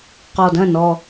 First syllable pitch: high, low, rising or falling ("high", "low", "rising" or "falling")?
low